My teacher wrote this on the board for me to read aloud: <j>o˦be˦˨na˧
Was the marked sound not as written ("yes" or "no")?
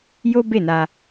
no